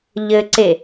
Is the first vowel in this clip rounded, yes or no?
no